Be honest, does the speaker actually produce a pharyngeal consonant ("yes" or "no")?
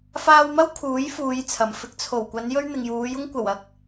no